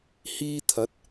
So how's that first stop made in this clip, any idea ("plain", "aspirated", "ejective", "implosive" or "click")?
aspirated